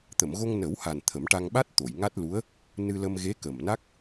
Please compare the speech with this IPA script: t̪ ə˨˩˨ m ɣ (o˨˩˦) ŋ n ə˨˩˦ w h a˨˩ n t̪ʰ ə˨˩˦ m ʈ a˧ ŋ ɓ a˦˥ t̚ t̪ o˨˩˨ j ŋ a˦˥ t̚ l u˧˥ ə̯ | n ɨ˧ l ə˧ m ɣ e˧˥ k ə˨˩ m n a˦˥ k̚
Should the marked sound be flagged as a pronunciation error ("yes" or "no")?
yes